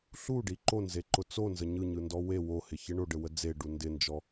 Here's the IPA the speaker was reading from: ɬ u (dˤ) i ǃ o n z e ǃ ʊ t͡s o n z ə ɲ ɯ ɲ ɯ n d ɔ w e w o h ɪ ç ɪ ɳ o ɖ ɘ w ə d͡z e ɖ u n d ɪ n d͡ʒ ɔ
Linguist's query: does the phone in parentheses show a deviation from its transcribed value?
yes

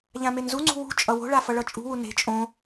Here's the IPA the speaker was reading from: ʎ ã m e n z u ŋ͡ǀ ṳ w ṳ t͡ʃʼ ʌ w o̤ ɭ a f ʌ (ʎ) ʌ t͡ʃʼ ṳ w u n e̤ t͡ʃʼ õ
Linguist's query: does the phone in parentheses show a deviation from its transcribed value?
yes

